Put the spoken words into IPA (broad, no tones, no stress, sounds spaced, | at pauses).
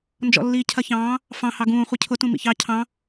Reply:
n d͡ʒ ɔ̰ lː iː cʰ ɐ ç ɑ̃ː | f ɑ̃ h ɑ ɡ ũː χʷ i cʰ ʊ t ũ m ḭ ç ɑ cʰ ɑ̃